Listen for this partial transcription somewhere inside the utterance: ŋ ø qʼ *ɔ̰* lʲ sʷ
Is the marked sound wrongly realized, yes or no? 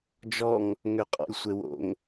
no